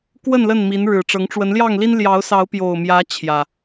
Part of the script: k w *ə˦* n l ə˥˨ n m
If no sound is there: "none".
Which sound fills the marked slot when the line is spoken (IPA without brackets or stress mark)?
ə˥˨